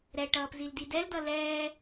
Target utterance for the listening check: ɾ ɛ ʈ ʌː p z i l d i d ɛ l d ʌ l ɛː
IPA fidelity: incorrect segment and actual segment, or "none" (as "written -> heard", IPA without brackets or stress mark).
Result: none